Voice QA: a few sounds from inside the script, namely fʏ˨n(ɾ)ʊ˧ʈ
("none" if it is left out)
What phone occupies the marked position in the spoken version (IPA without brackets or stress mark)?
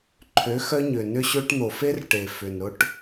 ɾ